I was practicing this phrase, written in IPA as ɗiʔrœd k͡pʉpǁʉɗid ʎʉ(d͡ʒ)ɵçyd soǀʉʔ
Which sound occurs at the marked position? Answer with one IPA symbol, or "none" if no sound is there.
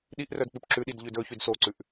d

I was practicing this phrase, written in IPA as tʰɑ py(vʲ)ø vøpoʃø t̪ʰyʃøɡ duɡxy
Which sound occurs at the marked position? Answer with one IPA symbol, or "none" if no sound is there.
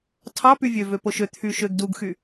vʲ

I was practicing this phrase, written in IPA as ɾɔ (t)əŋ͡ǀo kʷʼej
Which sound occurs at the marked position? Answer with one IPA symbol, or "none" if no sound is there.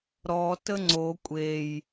t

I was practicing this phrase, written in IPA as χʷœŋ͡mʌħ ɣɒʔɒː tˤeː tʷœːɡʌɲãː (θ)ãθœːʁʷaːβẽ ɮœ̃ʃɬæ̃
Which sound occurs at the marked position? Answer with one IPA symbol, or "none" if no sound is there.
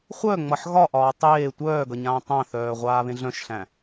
tˤ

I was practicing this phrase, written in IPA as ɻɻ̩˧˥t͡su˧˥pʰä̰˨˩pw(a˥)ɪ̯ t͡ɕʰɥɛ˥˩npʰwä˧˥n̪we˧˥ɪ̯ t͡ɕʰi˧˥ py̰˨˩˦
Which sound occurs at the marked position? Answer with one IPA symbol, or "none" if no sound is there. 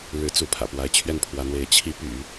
a˧˥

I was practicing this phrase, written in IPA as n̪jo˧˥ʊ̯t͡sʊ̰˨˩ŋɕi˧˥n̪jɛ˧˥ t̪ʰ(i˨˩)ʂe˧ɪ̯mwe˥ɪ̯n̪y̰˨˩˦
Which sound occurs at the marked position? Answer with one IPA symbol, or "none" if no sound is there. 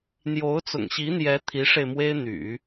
i˧˥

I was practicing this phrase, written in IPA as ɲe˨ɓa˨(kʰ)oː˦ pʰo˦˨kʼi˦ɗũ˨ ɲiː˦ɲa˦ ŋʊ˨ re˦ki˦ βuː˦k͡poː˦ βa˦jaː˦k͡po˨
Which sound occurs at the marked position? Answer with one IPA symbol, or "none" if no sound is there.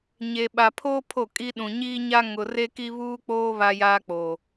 pʰ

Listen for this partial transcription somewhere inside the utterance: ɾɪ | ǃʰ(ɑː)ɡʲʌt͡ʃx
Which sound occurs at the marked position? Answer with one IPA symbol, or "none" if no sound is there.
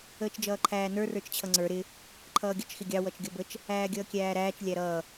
ʌː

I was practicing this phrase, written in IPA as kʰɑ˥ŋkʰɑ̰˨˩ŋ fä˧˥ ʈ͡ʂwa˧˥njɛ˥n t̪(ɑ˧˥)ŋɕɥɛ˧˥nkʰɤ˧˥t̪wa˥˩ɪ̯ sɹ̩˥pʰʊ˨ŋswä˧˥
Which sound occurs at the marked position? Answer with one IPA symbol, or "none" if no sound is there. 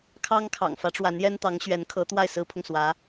ɑ˧˥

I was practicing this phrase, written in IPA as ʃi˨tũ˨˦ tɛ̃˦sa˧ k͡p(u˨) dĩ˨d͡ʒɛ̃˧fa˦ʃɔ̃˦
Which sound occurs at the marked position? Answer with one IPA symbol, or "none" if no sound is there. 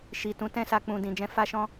ũ˨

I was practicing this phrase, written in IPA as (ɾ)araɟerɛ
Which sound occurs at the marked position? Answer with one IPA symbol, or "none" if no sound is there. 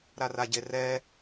ɾ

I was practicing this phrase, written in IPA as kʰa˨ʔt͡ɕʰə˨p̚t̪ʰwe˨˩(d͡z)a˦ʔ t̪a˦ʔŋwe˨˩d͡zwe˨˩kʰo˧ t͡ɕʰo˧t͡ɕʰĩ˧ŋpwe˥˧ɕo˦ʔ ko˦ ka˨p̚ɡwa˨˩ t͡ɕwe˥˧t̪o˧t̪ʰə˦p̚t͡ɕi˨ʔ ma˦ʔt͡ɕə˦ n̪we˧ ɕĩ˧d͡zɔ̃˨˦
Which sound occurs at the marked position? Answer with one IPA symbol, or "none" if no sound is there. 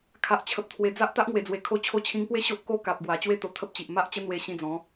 d͡z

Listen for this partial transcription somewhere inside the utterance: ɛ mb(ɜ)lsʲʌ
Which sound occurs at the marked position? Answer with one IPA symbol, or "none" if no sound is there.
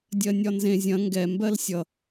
ɜ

